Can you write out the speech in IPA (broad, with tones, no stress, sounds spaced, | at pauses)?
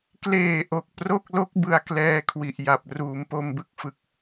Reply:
k l eː˨˩ ʔ o˨˩ k̚ p r o˥˩ k̚ l o˦˥ k̚ b ɯ˧ a̯ k l ɛː˧ kʰ w i˨˩ ʔ j a˨˩ p̚ r uː˩˦ m p o˧ m b ɯ˥˩ k̚ f ɯ˨˩ k̚